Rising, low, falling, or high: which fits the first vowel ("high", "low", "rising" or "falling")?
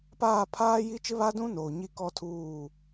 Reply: falling